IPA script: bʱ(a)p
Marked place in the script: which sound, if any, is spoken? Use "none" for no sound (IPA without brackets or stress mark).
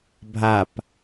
a